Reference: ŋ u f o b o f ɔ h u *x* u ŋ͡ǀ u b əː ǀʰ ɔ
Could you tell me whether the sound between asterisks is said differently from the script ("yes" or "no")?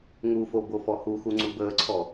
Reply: no